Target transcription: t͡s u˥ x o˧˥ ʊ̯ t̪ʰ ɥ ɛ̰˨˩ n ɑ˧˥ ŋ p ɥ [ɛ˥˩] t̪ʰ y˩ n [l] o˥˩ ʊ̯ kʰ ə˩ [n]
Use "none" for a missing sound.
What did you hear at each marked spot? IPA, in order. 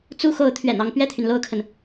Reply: ɛ˥˩, l, n

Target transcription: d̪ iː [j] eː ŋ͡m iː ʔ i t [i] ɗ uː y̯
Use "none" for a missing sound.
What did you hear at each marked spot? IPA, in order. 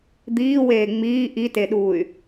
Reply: w, e

